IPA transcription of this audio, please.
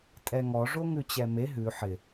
tʼɛŋɔ ʐoŋʉt͡ɕɛme ɦʉ ħɪ

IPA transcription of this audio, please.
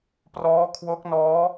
prɔː˦˥kʰwo˦˥k̚nɔː˦˥

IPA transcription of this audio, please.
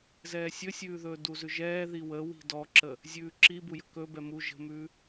zɛːsʲɵsʲʉːðɵː duzʉʒɛː ðiwə wi̤dɔǁə | zʲʉːǁi bujə̤kɵbɛ mu ʒə̤mʉː

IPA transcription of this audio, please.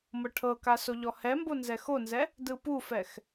mɤʈʰɤka soʎɔhɛmbo nzɛxonzɛ | dɯpufɛx

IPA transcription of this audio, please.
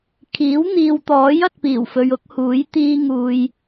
kʰiː˨˥wn̪iː˨wt̪ɔː˨˥j ɐ˨t̚piː˨˩wfɵ˨ɥ ʊ˨˥k̚huː˨˥j t̪iː˧ŋuː˨j

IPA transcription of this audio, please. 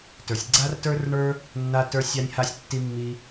tə˞˩sʲ ɡ͡ǀa˥rtə˞˥rɳə˞˥ | nːa˥tə˞˥ sʲa˥nʲha˥sʲ tːi˥mːi˥

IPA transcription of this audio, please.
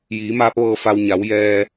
jiː˩˧maː˧˥p̚ʋɤː˧ fa˧w ɲa˩˧w jɛː˧

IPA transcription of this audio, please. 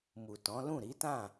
mu˨tɔ̃˨˦lũ˦˨ ɾi˨˦tã˦˨

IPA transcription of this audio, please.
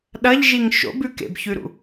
ɗɐʎʒiŋ ʃo̰bʉ kḛbçʉɾṵ

